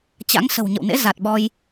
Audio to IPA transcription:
t͡ɕ a̰˧˥ ŋ s ə̤˨˩ w ɲ ə̰˧˨ w n ḛ˧˥ z a˨˩ t̚ ɓ ɔ˧ j

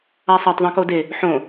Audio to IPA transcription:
a sˤ a tˤ ðˤ ẽ k o d e | ħ õ

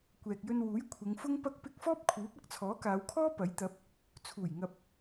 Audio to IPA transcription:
kʷ ɛː˨ k̚ j ɵ˧ n w uː˨˥ j kʷʰ ɪ˨˧ ŋ f ʊ˥ ŋ p ɐ˥ k̚ p ɪ˥ k̚ f ɔː˥ p̚ kʰ uː˨˥ p̚ ɐ˥ k̚ t͡sʰ ɔː˨˥ k aː˨˧ w kʰ ɔː˥ p ɐ˨˥ j t̪ ɐ˨˥ p̚ | t͡sʰ uː˨˩ j ŋ ɐ˨ p̚

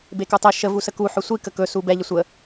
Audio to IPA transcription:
b e k u tˤ ɛ ʃ ə v u s ə k u ħ ɵ sʷ i k ə k ɵ s u b ɛ ʎ ə sʷ ə

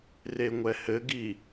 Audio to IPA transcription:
r e ŋʷ ɛ h ɘ ɡ i

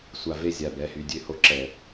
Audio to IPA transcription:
sʷ a˨ v e˦ zʲ a˨ b ɛ˨ h y˨ dʲ ø˦ h o˦ ǁ ɛ˨

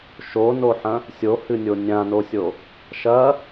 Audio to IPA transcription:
ʃ o n o ħ ɐ̃ | sʲ o h ɨ nʲ o nʲ ã n o sʲ o | ʃ ɐ

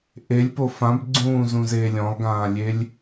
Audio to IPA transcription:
ʔ e lʲ p o f ã b ɡ͡ǀ ũː z ũ z eː lʲ ɔ̃ lˠ ɡ ãː lʲ e lʲ

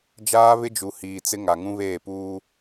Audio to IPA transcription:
d͡ʒ aː˦ β ɪ˦ d͡ʒ u˨ h iː˨ t͡s ɪ˦ ŋ a˨ ŋ ũ˦ β eː˦˨ p uː˦

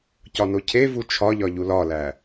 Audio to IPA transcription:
c ɒ n o cʰ e v u t͡ʃʰ ɒ ʎ ɒ ʎ u l ɒ l æ

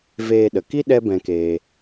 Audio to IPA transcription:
v eː˧ ɗ ə˨ k i˦ ɗ ɛ˦ b ɛ̃˧ k eː˧

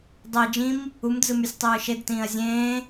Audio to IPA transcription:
dˤ e d͡ʒ ĩ m | u m d͡z ɯ m y sʲ tˤ ɯː ʃ e d t ĩː ɐ̯ zʲ ẽː

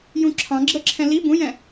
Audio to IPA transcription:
j ũ ǁʰ ɑ̃ ɡ͡ǁ ə ǁʰ ɛ̃ l i b ũ j ɛ̃

